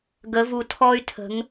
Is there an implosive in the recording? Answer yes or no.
no